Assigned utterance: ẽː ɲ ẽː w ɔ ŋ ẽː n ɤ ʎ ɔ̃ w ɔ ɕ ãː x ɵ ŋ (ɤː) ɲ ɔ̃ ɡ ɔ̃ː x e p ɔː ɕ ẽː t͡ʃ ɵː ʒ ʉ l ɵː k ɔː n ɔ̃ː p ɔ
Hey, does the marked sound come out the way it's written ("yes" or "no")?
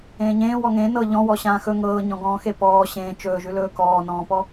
yes